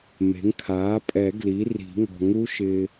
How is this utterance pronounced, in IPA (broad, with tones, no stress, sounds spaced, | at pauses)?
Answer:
m e̤˩˥ ŋ kʰ aː˩˥ pʼ ɛ˨˩˦ ɡ l i˩˥ r i̤˨˩˦ ŋ ɔ̤˨ ŋ u˦˥ ʃ ɪː˨